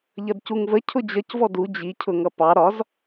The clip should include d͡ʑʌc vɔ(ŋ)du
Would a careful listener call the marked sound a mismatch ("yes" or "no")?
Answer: yes